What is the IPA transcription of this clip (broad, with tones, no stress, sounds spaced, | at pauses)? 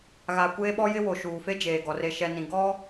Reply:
ɣ a˨ kʷ eː˦ ɓ ɔ˦ j ɪ˦ w o˨ ʃ uː˨ f e˦ d͡ʒ eː˨ ɡ ɔ˨ r e˨ ʃ ɛ˨ n ĩ˨ ɡ ɔ˦